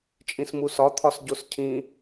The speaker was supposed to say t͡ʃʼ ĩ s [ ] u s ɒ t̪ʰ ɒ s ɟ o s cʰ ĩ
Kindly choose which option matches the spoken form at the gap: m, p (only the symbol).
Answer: m